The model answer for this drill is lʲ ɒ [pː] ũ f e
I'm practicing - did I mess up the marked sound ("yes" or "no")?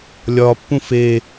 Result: no